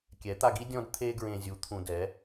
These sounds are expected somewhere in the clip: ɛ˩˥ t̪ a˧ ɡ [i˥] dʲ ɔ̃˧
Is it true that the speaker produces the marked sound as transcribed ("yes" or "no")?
yes